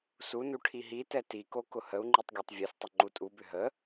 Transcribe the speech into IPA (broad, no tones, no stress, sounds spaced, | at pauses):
s u n u ʈʰ i ɦ i t ɛ t i k o k ʊ h ə u̯ ŋ͡ǃ i tˤ ɡʲ ɜ tˤ vʲ ø s tˤ ə ŋ͡ǃ u tʼ u b ʏ ɦ ə